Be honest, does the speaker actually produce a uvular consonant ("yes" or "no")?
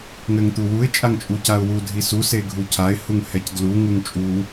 no